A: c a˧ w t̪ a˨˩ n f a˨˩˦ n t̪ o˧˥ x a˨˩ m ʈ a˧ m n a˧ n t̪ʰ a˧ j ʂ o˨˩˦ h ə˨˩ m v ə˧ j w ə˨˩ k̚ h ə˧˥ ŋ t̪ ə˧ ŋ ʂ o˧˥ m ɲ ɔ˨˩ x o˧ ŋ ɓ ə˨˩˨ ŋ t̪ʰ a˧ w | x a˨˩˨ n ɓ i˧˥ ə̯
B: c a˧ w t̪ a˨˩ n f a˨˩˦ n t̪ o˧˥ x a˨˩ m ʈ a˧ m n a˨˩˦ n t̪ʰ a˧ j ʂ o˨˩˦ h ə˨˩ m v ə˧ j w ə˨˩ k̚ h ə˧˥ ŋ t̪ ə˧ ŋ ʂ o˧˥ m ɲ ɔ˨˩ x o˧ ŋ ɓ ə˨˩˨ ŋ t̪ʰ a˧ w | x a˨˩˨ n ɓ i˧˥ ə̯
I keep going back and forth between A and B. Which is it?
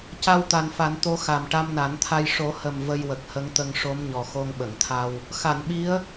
B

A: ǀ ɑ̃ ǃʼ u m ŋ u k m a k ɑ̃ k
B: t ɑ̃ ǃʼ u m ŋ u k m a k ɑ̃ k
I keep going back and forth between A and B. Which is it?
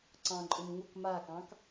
A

